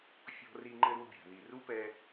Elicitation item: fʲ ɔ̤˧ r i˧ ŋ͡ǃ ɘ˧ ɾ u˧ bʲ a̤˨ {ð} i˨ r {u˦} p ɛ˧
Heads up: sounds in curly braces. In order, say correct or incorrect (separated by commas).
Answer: correct, correct